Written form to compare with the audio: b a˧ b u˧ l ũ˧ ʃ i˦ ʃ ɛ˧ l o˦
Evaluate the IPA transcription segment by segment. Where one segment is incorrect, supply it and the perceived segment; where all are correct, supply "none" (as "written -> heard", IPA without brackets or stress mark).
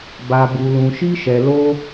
none